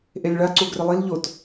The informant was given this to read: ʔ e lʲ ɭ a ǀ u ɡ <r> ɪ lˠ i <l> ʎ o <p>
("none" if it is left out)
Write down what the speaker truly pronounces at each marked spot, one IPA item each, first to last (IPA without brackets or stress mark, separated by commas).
r, l, t